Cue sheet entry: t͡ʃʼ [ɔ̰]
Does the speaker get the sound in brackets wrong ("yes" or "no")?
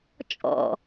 no